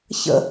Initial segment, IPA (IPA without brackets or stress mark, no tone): ç